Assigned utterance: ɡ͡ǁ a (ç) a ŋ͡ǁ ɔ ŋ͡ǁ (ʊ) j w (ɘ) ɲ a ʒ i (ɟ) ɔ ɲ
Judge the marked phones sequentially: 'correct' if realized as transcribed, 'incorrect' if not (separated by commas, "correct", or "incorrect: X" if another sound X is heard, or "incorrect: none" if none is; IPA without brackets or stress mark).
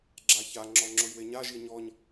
correct, correct, incorrect: e, incorrect: ɲ